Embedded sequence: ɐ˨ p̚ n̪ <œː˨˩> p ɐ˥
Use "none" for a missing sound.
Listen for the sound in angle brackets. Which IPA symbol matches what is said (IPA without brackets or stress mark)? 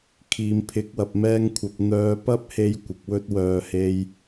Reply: œː˧